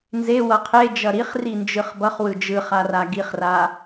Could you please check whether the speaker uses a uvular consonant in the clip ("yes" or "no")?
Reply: yes